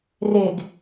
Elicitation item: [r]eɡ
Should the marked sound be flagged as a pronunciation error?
no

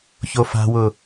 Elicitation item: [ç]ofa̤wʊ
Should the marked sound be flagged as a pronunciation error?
no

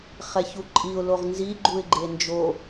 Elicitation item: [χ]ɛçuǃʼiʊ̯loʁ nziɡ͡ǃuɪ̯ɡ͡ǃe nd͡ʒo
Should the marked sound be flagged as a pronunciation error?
no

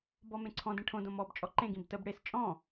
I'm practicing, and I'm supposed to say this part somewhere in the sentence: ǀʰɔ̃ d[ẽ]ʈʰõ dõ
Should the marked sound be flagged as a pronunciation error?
no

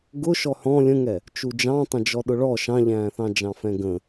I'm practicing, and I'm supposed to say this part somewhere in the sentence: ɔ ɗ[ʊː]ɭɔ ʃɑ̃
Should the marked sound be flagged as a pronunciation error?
yes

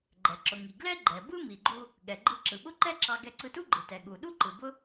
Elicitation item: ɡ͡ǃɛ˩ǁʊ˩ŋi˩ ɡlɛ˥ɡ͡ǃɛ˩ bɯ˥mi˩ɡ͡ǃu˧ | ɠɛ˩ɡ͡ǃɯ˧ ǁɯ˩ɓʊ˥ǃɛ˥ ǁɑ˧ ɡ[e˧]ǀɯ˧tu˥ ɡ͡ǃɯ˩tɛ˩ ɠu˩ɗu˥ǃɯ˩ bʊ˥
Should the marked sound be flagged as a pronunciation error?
yes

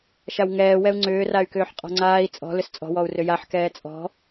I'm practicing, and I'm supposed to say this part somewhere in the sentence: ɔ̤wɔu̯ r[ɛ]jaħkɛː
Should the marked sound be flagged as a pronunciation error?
yes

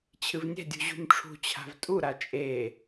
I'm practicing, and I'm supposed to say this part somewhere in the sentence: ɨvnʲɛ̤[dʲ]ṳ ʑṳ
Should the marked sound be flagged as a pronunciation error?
no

